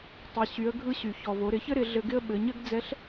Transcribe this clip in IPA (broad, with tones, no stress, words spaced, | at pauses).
tˤɪ˩˧ ɕy˩˧ə̯ɡʱɯ˧ɕy˩ çɔ˩vo˩˧ ɾɪ˩˧çɘ˥ɾɪ˩˧ ɮɘ˧ɡɪ˥ə̯ ɓɘ˩˧ɲɘ˥ɡd͡zɛ˧˥ɬ